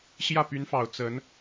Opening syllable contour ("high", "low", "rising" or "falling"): falling